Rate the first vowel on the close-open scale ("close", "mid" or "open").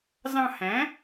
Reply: open